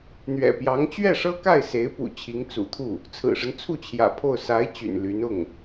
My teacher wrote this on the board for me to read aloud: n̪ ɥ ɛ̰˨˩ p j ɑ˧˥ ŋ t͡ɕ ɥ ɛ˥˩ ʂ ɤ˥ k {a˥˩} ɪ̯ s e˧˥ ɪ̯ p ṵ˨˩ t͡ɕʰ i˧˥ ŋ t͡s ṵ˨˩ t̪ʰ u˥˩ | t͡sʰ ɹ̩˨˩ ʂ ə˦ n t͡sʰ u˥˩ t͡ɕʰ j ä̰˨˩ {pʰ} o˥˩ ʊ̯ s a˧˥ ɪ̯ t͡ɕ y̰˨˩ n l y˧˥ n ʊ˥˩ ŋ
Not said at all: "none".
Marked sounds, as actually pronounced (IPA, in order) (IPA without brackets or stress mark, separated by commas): a˥˩, pʰ